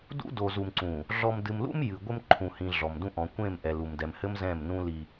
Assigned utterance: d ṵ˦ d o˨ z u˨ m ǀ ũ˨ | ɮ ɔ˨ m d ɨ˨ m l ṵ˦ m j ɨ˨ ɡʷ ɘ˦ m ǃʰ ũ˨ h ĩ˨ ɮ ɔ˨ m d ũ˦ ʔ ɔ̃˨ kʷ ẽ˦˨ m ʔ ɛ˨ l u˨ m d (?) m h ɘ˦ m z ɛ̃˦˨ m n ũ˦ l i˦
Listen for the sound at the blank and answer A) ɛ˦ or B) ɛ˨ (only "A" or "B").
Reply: B